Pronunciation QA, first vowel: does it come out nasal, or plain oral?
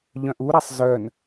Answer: nasal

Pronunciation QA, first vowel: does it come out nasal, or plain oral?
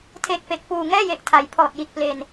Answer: oral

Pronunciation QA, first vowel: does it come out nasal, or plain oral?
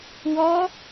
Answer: oral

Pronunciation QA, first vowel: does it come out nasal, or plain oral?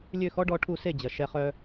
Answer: oral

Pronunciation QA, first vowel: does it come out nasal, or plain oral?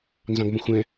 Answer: nasal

